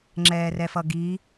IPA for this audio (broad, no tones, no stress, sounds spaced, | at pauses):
ŋ͡ǁ ɛː r ɛ f ʌ ɡ i